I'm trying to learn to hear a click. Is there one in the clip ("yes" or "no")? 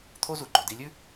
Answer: yes